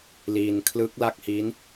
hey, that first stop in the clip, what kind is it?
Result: aspirated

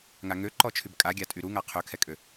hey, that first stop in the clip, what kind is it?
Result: click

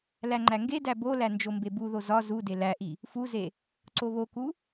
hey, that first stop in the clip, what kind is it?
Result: click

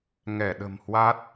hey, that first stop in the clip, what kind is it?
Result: implosive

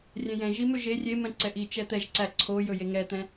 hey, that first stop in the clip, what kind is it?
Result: click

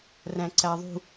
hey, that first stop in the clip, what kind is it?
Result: click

